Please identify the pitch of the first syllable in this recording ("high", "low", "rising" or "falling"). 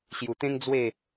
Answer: low